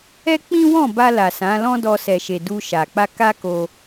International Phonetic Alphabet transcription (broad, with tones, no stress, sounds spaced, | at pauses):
ɛ˦ k͡p ĩ˦ w ɔ̃˦˨ b a˧ l a˨ s ã˨˦ l ɔ̃˦ d ɔ˧ s ɛ˨ ʃ e˨ d u˧ ʃ a˨ k͡p a˧ k a˦ k o˧